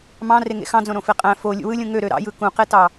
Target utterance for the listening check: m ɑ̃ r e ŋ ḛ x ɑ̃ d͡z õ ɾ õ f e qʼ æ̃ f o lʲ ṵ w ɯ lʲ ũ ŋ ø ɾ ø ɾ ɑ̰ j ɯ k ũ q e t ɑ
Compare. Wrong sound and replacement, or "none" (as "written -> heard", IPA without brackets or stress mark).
none